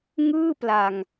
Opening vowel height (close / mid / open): close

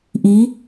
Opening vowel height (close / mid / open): close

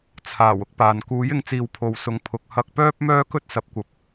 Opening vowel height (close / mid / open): open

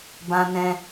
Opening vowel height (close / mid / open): open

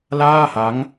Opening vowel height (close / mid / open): open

